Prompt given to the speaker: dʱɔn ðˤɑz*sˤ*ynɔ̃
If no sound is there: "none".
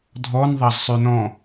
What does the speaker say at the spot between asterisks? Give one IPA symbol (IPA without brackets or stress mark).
sˤ